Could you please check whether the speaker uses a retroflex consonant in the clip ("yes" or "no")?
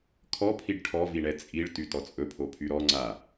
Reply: yes